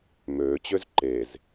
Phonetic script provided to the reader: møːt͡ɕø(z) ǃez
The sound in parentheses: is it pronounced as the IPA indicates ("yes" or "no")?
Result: yes